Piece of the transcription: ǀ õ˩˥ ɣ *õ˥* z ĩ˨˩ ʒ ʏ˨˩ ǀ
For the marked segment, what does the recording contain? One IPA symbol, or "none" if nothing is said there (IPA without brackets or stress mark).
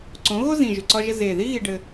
o˥